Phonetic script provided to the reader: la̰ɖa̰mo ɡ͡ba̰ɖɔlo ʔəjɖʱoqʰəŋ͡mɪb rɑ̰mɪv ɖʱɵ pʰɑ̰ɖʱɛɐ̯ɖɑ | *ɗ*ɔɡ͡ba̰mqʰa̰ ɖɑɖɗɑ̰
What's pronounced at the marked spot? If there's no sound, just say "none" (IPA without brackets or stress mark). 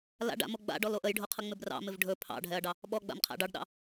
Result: ɓ